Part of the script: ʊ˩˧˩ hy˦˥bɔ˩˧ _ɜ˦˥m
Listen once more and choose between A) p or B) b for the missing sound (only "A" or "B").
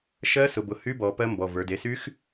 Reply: A